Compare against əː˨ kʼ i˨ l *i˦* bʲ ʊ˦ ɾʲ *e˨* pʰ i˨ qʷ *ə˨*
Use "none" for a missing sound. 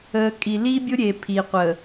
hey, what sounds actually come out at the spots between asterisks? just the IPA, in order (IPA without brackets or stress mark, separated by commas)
i˦, e˨, ə˨